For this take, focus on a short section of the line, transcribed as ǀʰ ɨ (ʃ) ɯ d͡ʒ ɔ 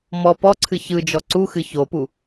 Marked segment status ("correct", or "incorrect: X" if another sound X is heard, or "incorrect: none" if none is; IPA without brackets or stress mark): incorrect: ç